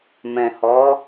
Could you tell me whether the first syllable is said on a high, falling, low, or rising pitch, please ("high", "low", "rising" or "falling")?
low